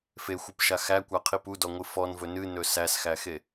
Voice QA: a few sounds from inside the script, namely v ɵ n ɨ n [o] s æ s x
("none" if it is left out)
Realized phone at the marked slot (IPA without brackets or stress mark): ɵ